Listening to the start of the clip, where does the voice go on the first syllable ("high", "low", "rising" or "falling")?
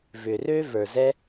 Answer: low